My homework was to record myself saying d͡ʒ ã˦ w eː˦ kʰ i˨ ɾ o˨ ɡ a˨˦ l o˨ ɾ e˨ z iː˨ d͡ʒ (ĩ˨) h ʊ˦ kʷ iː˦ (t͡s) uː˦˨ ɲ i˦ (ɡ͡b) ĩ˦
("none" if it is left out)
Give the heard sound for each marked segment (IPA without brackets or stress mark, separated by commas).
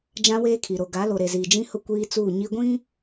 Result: ĩ˦, t͡s, ɡʷ